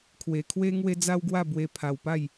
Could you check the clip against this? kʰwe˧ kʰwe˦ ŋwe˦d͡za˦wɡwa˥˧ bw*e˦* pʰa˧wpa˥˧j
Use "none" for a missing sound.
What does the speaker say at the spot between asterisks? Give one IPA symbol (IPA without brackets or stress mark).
e˦